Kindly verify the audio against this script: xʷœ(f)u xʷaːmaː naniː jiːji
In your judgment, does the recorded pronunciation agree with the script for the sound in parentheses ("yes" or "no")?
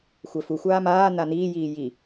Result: yes